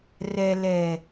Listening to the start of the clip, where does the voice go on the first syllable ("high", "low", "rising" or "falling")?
low